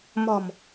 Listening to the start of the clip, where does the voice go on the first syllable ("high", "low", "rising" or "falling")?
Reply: low